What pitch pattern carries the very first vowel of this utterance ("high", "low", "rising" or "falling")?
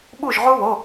falling